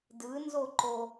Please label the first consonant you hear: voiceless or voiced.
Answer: voiced